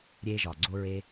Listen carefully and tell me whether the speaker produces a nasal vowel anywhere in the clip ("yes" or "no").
no